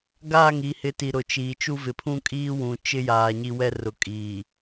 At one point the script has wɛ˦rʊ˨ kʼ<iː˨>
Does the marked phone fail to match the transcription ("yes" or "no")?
no